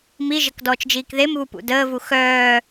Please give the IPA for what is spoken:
m i ʒ ə k d ɔː t͡ʃ d͡ʒ iː k ð e m β u p ṵ d əː v u x œː

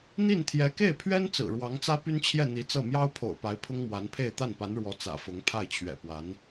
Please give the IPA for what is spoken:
n̪ i˥˩ n t̪ʰ j ɛ˧˥ k e˥˩ ɪ̯ pʰ ɥ ɛ˥ n t͡s ɹ̩˨˩ ɻ w ɑ˧˥ ŋ t͡s ä˥ p y˥ n t͡ɕʰ j ɛ˥˩ n̪ i˧˥ t͡s ɤ˥˩ m j ɑ˥ ʊ̯ pʰ o̰˨˩ ʊ̯ p a˧˥ ɪ̯ pʰ ʊ˥ ŋ m w a˧˥ n pʰ e˥˧ ɪ̯ t̪ a˥˩ n p a˧˥ n ɻ w ɔ˧˥ t͡s ä̰˨˩ f ʊ˧˥ ŋ pʰ a˥˩ ɪ̯ t͡ɕʰ ɥ ɛ̰˨˩ p w a˧˥ n

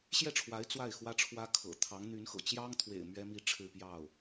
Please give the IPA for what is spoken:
ɕ j ɛ˥˩ ʈ͡ʂʰ w a˧˥ ɪ̯ t͡s w a˥˩ ɪ̯ x w ä˥ ʈ͡ʂʰ w ä˥ kʰ ɤ̰˨˩ t̪ʰ ɑ˧˥ ŋ n̪ y˧˥ n x ɤ̰˨˩ t͡ɕ j ɑ˥ ŋ t̪ʰ w ḛ˨˩ ɪ̯ m ɥ ɛ˥ m i˥˧ ʈ͡ʂʰ ɻ̩˥˧ p j ɑ˥˩ ʊ̯

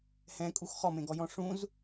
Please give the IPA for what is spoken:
h ɛ̃ kʼ u x χ ɔ m ẽ ɡ ɔ j ɔ̃ ʂ ũ z

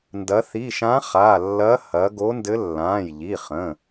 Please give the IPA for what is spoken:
n d ɐ˩˧ θ i˩˧˩ ʃ ã˧˥ χ a˩˧˩ lː ɐ˧˥ h ɐ˩˧ ɡ o˧˥ n d ɘ˧˥ lː ãː˩˧˩ j ʎ i˩˧˩ χ ə̃˩˧˩

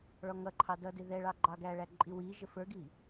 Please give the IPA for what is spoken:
ɭ ɔ ŋ ʌ ǃʰ ɑ d ʌ d ɪ ð ɛ ɭ ɑ ɡ͡ǃ ɑ ɡ æ ɭ æ ǃʼ i w i ʒ ə f ə˞ ɡ i

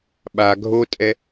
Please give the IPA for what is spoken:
ɓ a ɡʱ o tʼ ɛ

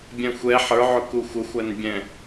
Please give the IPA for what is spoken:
bʲ ɛ̃ xʷ ɛ ħ ə˞ ʕ ʊ k u xʷ ə xʷ æ n bʲ ɛ̃

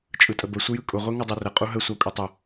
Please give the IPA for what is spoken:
t͡ʃʼ ɯ tʼ ə b ə sʷ ə j ɯ kʼ ʊ ʁʷ e ŋ ɯ dˤ e r ə qʼ u ɦ ə sʷ ɑ kʷʼ ə tˤ ʊ

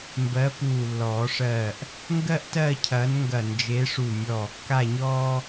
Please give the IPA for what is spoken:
m b ɜ˨˥ p uː˧˩ lː ɔː˨˩˦ ʂ ɜː˧˩ ʔ | ŋ ɡ ɜ˥ ʔ t ɜː˥˧ cʰ ɐː˨˥ n ŋ ɡ ɐ˧˩ n d͡ʒ e˨˥ ʂ u˧˩ mʲ ɔː˧˩ kː a˥˧ ɲ ɔː˥

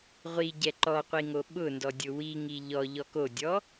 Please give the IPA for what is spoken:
ʁʷ i ɟ ɛ ǃ ɔ qʷ i ŋ o ɓ ʊ n d ɔ dʲ ʊ w i ŋ i ʎ ɔ ʎ ɔ k o dʲ ɔ

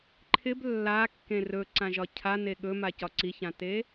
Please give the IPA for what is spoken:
ǃʰ ɪ b lː a kː ẽ r ɵ ǀ ã ʒ ɒ cʰ a n e ɠ ɵ m a c ɒ ǀ i ç ã t e

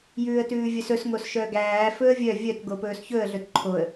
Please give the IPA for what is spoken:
j ʉː ə̯ t ʉː vʲ œ s ɵ s ŋ o s ʃ œ ɡ æː f ɵ ə̯ vʲ œ vʲ œ t ɡ o p ɵː s ç ɵ ə̯ ɮ ɵ t ǃʰ o ə̯

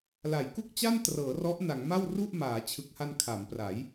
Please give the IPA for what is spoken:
l a˩˦ j k u˥˩ k̚ t͡ɕ a˥˩ n t r ɤː˩˦ r ɔ˦˥ ʔ n a˩˦ ŋ m a˥˩ w r u˥˩ ʔ m aː˩˦ t͡ɕʰ ɯ˨˩ k̚ h a˧ n kʰ a˩˦ m p r a˩˦ j

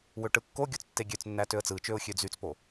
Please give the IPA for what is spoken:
w ø ʈ ɯ kː o ɡʲ o t͡s tː e ɡʲ ø t͡s nː æ t ø ə̯ t͡s ɯ t͡ʃ ø ʊ̯ xʲ ø d͡z y t͡s p o

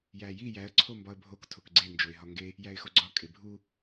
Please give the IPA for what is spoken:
j æ j i j æ ə̯ ǀʰ o m b ɒ ə̯ bʱ o k tʰ o k ɡ͡ǀ e n d͡ʒ o ɪ̯ ɦ ɒ ŋ ɡ e | j æ ɪ̯ x o ɡ͡ǀ ɒ kʼ e bʱ u

